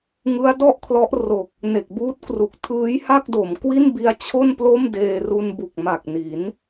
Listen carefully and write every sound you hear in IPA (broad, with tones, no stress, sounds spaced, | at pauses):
ŋ ɯ˦˥ a̯ d ɔ˥˩ ʔ kʰ l ɔ˦˥ ʔ r o˨˩ k̚ | n e˨˩ k̚ b uː˦˥ t̚ k r u˨˩ k̚ tʰ ɯː˦˥ j h a˥˩ k̚ d o˩˦ m k w i˥˩ n b i˦˥ a̯ t͡ɕʰ o˥˩ n p l o˥˩ m d eː˧ r u˧ n b u˨˩ k̚ m a˨˩ k̚ n i˩˦ n